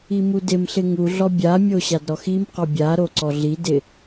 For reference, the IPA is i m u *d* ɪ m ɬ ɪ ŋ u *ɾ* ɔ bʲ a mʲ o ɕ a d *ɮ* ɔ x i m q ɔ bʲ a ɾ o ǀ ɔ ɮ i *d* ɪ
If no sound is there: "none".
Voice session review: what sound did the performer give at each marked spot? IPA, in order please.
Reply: d, ɮ, ɾ, d

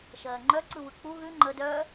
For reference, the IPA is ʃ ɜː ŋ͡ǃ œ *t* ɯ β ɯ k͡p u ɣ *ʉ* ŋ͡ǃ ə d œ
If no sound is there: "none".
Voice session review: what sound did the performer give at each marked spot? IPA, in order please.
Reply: ǀ, ʉ

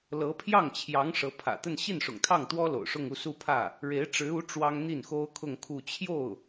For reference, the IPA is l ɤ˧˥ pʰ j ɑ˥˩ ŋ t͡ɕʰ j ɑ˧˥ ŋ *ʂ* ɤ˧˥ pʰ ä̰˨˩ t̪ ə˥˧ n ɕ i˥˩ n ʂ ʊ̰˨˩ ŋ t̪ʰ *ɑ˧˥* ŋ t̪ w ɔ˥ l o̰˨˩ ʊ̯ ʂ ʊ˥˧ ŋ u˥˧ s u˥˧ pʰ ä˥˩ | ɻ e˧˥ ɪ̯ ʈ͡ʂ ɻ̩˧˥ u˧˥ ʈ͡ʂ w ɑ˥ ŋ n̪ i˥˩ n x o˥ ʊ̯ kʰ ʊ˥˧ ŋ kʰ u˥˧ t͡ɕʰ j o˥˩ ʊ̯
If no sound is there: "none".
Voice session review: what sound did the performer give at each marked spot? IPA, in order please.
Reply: ʂ, ɑ˥˩

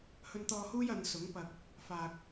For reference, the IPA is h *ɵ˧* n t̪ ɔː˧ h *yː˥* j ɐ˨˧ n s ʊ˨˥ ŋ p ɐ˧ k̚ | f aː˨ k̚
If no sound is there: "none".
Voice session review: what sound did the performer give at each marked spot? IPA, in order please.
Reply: ɵ˧, uː˥

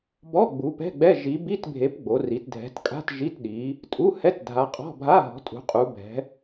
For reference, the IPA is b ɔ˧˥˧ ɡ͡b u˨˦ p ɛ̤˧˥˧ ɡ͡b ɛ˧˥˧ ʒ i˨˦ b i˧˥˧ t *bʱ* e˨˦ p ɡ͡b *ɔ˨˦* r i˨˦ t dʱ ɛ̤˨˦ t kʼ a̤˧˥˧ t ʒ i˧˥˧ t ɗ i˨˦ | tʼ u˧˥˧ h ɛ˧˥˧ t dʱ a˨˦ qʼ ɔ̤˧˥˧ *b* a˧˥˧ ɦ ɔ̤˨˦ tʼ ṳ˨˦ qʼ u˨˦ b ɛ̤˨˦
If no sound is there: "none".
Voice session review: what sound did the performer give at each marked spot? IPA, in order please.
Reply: bʱ, o˨˦, bʱ

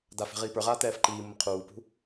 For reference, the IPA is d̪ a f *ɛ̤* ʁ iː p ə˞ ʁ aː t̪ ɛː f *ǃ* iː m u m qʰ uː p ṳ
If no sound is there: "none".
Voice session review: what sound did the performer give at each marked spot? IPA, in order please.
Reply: ɛ̤, ǃ

